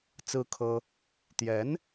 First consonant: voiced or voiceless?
voiceless